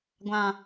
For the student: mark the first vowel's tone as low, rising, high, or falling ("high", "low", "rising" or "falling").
low